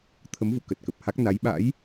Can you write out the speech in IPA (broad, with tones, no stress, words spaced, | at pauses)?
t̪ʰə˨˦mvṵ˧˨ kə˨˩t̚kə˨˩p̚ha˦˥k̚ na˨˦j ɓa̰˧˥j